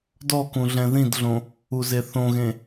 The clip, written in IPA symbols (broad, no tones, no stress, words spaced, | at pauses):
dɔkũ ɮɛ̃ðĩdɮõ | uzeθõɣẽ